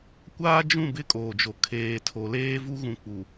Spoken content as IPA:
kʷ aː˦ d͡ʒ ũ˦˨ b ɪ˦ kʼ oː˨ d͡ʒ o˨ kʰ eː˨ tʰ o˨ l eː˦ v u˦ ɣ ũ˨ k͡p u˨

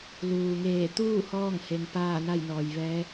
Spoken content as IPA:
l uː˩ ŋ eː˧˩ t̪ uː˥˨ h ɔː˥˨ ŋ h e˩˧ ŋ p aː˥˨ n a˥˨ j n ɔː˩ j ʋ ɛː˧˥

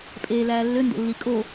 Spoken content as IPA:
pʼ eː l æː lː ø n d o̰ lː i kʼ o

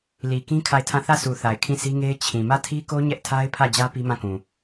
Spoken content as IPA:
l i˨ k ĩ˦ kʰ a˦˨ ɪ̯ tʰ ã˦˨ θ ä˦˨ sʰ u˨ θ a˨ ɪ̯ kʰ ĩ˦˨ sʰ i˦ ŋ e˦ ɪ̯ t͡ɕʰ ĩ˨ m ä˦˨ tʰ i˦ k o˦ ɲ ɛ˦ ʔ tʰ a˦ ɪ̯ pʰ ä˦˨ d͡ʑ ä˦ p i˦ m ã˦˨ k ũ˨

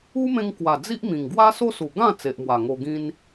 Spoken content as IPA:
u˦ m ẽ˧ ŋ k w a˨˩ d͡z i˦ ʔ m ĩ˨˩ ŋ ɡ w a˦ s o˦ s u˨˩ ɡ ã˥˧ t͡s e˨ ʔ m w a˨˩ ŋ o˧ ɡ ĩ˦ n

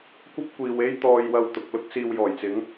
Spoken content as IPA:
kʷ ɐ˥ p̚ kʷ iː˨ w e˥ j t̪ ɔː˧ j w ɐ˧ w t̪ ʊ˨ k̚ l ʊ˥ k̚ s iː˧ w j ɔː˨˩ j t͡s ɪ˨˥ ŋ

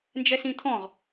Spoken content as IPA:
n d͡ʒ ɛ s ĩ t̪ʰ ɔ̃ ʁ

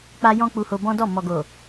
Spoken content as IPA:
k͡p a˧ j ɔ̃˦ k͡p u˧ h o˧ b ɔ̃˦ d ɔ˦˨ m ɔ˨ ɡ o˨

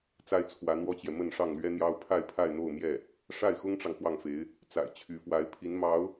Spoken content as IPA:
t͡s a˥ ɪ̯ t͡sʰ w ä˧˥ n̪ w ɔ˥ t͡ɕ j ɛ˨ m ə˥˧ n ʂ ɑ˥˩ ŋ l ɥ ɛ˥ n̪ j ɑ˥ ʊ̯ pʰ a˥˧ ɪ̯ pʰ a˥˧ ɪ̯ n̪ o˥˧ ʊ̯ m j ɛ˥˩ | ʂ a˥˩ ɪ̯ x ʊ˥ ŋ ʈ͡ʂ ɑ˨ ŋ x w ɑ˥˩ ŋ f e˧˥ ɪ̯ | t͡s a̰˨˩ ɪ̯ t͡ɕʰ y˧˥ f w a˧˥ ɪ̯ pʰ i˧˥ n m ɑ˧˥ ʊ̯

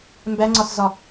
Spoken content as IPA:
m b æ ŋ͡ǀ ɒ s z ɒ

